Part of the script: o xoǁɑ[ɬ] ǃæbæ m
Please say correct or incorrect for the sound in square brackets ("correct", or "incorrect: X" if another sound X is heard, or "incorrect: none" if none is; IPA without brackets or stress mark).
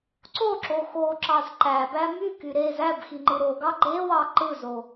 incorrect: z